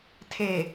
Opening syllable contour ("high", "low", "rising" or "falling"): low